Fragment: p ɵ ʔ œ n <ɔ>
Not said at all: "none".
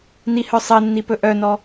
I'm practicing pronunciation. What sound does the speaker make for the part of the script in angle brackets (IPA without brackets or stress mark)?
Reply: ɔ